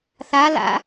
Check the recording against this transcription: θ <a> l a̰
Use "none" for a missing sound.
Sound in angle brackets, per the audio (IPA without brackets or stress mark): a